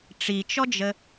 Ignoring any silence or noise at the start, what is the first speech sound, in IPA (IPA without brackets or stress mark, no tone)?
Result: ʈ͡ʂ